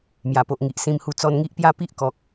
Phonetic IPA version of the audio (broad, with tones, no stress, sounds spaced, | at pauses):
m j a˨˩ p o˨ ʔ ŋ i˨ ʔ s ĩ˧ m h u˧ t͡s ɔ˧ n ŋ i˦ ʔ p j a˥˧ p i˦ ʔ k ɔ˨ k̚